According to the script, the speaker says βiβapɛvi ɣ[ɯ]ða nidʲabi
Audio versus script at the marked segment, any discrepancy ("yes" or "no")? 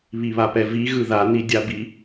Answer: no